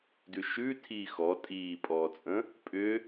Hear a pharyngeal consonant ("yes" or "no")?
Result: no